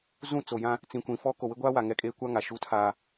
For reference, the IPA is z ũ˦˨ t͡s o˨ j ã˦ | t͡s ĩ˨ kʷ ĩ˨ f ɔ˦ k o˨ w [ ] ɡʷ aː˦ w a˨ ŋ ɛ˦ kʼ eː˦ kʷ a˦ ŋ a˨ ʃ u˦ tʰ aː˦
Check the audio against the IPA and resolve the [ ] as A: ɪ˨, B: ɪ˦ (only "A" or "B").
B